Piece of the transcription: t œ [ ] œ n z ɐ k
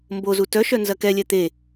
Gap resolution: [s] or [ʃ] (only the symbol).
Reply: ʃ